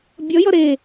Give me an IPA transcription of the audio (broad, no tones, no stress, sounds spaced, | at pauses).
bʲ ʌ j ʌ ɾ e